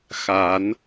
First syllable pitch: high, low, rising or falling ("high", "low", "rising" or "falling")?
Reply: rising